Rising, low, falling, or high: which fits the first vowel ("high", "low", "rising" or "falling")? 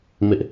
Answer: high